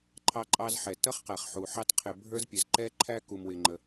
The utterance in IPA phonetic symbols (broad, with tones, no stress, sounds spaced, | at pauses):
ǃʰ ɑ˥ ǃʼ ɑ˥ z ħ ɛ˩ t ʌ˥ χ q æ˩ χ ħ u˩ ħ ɑ˥ t qʰ ɪ˩ bʱ ə˞˥ z pʲ ə˩ z ǃ ɛ˥ ǃʰ æ˥ k u˩ m w ɪ˩ ŋ͡ǃ ə˩